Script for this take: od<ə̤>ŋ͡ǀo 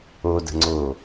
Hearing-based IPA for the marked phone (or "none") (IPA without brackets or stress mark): ə̤